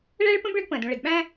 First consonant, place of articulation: retroflex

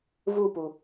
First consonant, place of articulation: labial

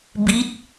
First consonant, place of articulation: labial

